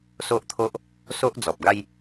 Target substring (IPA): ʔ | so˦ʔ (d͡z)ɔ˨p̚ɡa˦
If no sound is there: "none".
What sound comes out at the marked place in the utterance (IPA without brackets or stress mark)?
d͡z